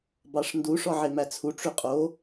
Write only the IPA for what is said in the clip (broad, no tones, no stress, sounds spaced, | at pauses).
b ɑ ʂ n d u ʂ ɔ ʕ e m æ t͡sʰ u ʈ͡ʂ ʉ qʼ o